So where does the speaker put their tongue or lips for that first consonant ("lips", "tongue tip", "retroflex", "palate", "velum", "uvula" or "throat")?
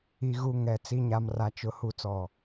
velum